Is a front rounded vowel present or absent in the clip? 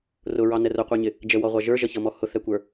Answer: absent